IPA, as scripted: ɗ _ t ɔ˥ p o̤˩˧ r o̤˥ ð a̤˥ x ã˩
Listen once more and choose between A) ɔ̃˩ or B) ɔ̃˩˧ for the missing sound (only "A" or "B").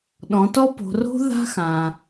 B